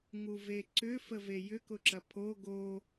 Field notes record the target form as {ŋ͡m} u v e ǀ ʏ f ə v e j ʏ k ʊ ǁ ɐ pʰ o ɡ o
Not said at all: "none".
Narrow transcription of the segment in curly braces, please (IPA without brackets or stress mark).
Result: ŋ